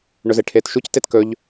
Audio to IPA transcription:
ɳɵzeʈʰeːtʃuc tetkɵʎ

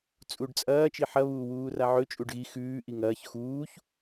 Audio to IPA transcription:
t͡sʼuɖt͡sʼɐː t͡ʃiħɐ βuːwuːraʕɵ t͡ʃʼuɖɣi xʉː ʔiŋɐːç xuːç

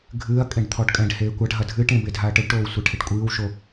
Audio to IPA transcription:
ɡʱɨːɐ̯ kʼẽɖt̪ʰɔɖkʼɛ̃ɖheː kʷaɖɦɐ dʱɨʈẽ bedʱaɐ̯ʈɘɖʈoːw sʷɛʈʰeʈkʷʼɨːwʃo

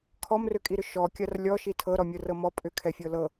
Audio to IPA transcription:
kʰɔmrʏkʼiɾʏ ʃɔkʲɐr lʲɔʃi tʰɤɾɔmʲɤrɤ mɔ pʼʏkʰɛfʲɤ lɤ

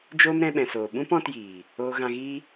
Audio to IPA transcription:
d͡ʒoː˦mɾɛ̃˧ɓɛ̃˨soː˨ ɓũ˦pɔ̃˧tjiː˨ | oː˧ɣã˧ɣiː˦

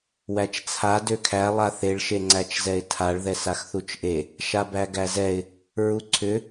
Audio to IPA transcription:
wæt͡ʃt͡sʰa døkʰæ lˠaθeɭ ʃeŋ͡ǀæt͡ʃzɛɪ̯tʰaɭ ðɛsaxθut͡ʃʔe | ʃabæɡæzɛɪ̯ | ɹuǀʰʏ

